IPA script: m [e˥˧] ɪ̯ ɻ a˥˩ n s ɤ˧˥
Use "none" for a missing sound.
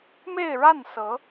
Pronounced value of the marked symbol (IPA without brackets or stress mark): e˥˧